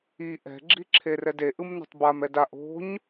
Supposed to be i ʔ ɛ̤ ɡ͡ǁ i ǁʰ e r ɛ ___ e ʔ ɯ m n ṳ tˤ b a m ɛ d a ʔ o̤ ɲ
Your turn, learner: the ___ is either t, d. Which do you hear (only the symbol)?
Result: d